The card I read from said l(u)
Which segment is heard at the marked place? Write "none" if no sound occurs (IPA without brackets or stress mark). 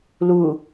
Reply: u